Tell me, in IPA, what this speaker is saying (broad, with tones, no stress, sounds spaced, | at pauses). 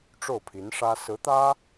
ʈ͡ʂ o˥˩ ʊ̯ pʰ i˧˥ n ʂ ä˥ s ɹ̩˧˥ t̪ ä˥